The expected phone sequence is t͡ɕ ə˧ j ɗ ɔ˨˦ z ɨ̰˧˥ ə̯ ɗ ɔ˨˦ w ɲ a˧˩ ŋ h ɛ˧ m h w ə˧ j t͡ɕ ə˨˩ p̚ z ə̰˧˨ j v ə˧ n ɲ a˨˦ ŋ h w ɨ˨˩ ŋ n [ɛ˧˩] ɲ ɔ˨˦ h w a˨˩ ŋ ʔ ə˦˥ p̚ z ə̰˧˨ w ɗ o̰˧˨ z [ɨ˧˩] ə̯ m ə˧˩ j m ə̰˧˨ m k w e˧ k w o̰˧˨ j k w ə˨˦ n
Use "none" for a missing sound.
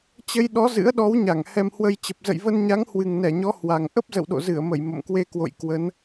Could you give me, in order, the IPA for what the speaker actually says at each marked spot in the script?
ɛ˧˩, ɨ˧˩

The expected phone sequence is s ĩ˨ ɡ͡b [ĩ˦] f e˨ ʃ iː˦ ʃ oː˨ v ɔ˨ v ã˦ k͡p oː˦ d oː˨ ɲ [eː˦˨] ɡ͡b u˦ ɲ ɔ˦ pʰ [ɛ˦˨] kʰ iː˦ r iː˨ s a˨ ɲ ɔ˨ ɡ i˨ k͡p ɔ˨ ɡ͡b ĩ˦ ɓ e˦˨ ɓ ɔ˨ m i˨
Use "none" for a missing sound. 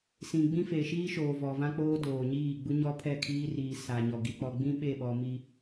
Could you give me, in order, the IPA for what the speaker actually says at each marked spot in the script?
ĩ˦, iː˦˨, ɛ˦˨

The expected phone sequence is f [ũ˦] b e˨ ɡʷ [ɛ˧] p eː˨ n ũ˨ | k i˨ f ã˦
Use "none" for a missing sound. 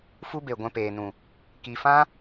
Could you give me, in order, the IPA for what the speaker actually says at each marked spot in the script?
u˦, ɛ̃˧

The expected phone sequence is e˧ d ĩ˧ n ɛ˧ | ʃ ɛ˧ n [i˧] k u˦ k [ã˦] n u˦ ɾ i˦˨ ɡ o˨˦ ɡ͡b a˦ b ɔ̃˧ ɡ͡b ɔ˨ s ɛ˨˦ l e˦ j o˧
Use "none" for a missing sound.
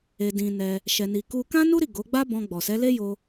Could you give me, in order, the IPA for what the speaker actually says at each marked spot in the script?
i˧, ã˦

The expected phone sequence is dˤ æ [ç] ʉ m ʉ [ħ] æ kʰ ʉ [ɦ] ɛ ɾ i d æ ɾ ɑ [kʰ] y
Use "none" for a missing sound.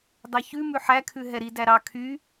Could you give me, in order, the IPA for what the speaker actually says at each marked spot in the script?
ç, ħ, ɦ, kʰ

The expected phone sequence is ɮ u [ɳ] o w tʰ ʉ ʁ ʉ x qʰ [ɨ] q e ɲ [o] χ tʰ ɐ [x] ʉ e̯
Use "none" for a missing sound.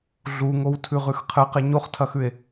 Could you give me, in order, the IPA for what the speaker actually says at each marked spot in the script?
ŋ, ɨ, o, x

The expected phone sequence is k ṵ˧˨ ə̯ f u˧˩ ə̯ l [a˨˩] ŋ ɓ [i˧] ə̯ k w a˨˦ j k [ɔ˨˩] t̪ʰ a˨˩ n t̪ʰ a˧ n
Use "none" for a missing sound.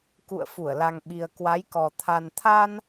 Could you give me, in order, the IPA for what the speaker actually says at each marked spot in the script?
a˨˩, i˨˩, ɔ˨˩

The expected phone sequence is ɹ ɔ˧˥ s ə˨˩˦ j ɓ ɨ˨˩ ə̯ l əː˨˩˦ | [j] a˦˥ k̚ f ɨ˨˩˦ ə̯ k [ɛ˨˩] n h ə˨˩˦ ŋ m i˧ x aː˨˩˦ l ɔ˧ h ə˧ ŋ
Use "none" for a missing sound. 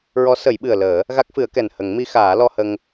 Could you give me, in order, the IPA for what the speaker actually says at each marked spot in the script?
ɣ, ɛ˨˩

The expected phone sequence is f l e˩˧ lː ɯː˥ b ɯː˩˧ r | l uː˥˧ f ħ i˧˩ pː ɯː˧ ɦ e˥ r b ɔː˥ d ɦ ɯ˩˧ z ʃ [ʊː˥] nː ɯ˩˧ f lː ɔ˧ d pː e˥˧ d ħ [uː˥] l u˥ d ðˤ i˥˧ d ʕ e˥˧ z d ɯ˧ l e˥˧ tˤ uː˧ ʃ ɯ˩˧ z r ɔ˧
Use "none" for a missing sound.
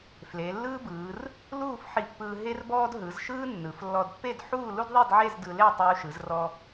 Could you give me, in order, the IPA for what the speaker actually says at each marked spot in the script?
ɯː˥, uː˥˧

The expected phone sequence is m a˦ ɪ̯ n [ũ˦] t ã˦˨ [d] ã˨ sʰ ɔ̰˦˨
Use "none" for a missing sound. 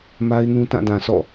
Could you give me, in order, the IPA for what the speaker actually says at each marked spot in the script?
ũ˦, d

